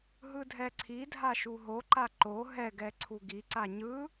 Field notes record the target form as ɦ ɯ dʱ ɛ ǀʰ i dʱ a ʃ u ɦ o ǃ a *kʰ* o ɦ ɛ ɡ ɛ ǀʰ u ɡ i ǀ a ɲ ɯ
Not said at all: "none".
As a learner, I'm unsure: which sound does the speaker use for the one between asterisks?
ǃ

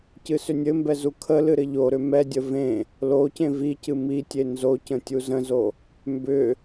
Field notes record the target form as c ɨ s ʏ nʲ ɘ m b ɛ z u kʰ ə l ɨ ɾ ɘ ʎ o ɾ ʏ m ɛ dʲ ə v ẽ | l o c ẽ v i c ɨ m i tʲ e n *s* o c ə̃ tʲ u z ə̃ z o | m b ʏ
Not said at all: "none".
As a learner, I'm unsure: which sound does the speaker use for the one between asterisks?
z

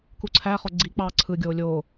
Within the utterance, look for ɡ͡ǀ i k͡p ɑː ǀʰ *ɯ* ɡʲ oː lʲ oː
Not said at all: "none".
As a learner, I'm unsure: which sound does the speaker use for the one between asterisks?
ɯ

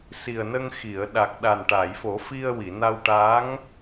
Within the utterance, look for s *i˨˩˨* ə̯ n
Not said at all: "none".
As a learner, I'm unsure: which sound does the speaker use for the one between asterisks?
i˨˩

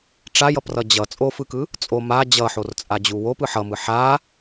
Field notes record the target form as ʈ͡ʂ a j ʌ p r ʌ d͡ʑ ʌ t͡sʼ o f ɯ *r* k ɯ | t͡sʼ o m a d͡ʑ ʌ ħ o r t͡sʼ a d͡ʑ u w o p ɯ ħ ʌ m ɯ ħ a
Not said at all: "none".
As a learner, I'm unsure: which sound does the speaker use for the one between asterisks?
none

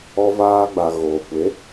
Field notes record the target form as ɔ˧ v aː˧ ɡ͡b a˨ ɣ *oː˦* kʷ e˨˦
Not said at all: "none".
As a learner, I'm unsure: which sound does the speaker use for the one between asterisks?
oː˨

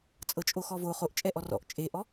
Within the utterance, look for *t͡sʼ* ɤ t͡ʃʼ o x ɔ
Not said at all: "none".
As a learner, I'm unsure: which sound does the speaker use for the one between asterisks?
t͡sʼ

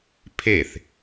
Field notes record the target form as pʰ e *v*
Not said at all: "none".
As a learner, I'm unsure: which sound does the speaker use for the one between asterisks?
θ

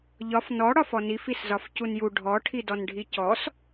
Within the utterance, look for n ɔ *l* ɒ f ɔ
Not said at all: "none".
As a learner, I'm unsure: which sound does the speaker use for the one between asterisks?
ɽ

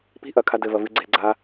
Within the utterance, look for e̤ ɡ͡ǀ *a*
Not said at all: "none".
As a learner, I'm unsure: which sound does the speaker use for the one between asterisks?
a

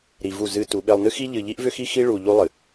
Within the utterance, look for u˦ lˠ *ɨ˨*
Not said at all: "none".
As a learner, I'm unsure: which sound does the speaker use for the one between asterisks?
ɨ˨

